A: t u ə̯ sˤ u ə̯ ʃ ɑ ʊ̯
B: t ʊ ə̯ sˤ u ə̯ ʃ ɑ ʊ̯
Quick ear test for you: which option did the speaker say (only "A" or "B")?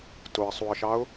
B